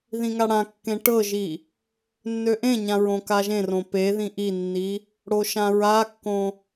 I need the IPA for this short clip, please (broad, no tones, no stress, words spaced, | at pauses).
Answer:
ðĩŋaɽãkːẽ ʈɤʒi | nːøʔẽɲã ɹõkaʒẽrõ peðĩ ʔinːi | ɽoʃãɹakːõ